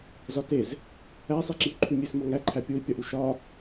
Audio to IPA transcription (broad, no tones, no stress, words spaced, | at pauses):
zɒtez | æsˤiǁiu̯ǃʰu mʲesmɒŋæǃʰæ pʲoi̯pʲɒʔu ʃɒ